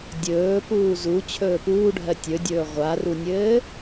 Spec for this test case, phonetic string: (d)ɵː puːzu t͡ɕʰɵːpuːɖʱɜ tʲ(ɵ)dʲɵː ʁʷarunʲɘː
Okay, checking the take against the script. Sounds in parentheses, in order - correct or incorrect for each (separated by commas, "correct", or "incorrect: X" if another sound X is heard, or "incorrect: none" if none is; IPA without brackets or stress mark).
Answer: incorrect: dʲ, correct